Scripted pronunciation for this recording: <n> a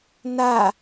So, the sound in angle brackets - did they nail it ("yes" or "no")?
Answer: yes